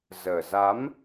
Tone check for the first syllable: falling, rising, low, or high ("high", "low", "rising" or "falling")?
low